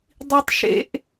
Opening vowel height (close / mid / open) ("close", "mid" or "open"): close